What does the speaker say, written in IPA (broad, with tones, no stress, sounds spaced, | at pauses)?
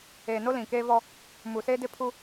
eː˨ n o˦ l ĩ˨ k eː˦ v ɔ˦ | m u˨ s e˦ d ɪ˦ pʰ u˦